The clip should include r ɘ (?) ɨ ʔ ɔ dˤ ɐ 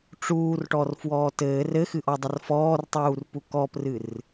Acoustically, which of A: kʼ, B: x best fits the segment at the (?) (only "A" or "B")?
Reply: B